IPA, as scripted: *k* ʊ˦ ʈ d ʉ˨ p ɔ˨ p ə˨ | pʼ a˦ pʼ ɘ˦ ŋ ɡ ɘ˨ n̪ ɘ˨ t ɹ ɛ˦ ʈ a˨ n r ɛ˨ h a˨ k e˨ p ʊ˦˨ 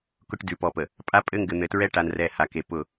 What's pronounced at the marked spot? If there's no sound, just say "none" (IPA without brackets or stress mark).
k